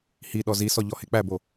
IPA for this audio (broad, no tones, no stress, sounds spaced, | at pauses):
h i ɗ ɔ z i s ɔ ʎ ɔ h e k͡p æ b o